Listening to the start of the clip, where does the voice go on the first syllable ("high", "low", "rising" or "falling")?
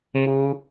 high